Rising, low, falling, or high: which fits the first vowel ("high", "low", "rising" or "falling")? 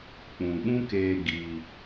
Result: low